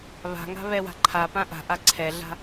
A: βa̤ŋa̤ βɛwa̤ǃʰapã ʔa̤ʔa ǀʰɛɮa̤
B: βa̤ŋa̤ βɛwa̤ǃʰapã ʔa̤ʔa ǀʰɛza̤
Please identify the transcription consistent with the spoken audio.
A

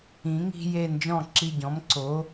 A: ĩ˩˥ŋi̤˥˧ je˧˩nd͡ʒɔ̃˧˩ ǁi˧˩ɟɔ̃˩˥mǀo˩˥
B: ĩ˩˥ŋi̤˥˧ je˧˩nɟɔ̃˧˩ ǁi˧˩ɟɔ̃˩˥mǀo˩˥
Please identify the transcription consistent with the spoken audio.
A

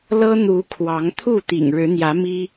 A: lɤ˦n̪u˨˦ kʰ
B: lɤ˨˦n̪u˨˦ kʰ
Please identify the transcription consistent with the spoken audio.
A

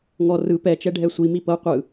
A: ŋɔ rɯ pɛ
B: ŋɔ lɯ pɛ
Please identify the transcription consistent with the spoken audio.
A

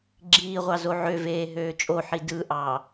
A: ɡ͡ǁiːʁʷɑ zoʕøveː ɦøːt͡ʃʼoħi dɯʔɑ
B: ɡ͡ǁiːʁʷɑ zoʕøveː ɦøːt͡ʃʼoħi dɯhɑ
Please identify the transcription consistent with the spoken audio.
A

